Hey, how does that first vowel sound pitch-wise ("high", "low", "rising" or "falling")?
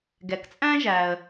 low